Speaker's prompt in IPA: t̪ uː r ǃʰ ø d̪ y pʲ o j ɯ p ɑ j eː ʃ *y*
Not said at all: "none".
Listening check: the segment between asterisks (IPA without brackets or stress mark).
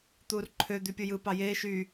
y